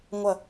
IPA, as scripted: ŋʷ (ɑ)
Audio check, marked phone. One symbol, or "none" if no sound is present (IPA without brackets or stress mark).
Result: ɐ